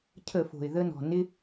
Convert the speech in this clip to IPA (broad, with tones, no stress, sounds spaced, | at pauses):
cʰ ə˧˩˧ f o̤˩ ɪ̯ ð ə˧ n ɔ̤˩ n ɪ˧